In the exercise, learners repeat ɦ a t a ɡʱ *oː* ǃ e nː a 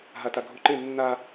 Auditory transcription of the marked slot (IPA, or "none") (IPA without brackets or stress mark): o